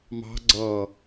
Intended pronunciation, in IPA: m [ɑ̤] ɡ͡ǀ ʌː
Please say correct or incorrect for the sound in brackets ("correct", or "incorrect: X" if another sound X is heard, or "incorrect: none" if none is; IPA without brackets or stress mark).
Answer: correct